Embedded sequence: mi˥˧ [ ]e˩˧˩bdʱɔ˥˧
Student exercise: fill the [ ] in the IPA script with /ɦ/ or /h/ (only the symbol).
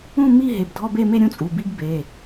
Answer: ɦ